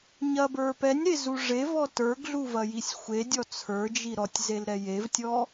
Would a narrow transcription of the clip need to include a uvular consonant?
no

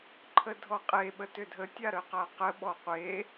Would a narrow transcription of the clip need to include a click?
yes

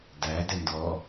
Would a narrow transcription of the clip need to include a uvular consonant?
no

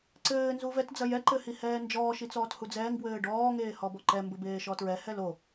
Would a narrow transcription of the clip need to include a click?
yes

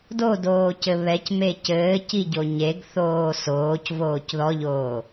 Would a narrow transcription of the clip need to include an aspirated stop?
no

